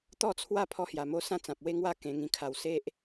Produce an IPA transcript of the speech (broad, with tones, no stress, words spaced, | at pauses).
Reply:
t̪ɔ˦t͡sʰwa˦ pʰɔ˧hja˨˩mo˧ sã˦t͡sã˨p̚we˦ŋwa˦ kẽ˧ŋĩ˧kʰa˧w se˦ʔ